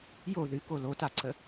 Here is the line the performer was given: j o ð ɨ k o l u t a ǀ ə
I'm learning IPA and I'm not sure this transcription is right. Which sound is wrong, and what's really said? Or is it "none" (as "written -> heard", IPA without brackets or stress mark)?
u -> o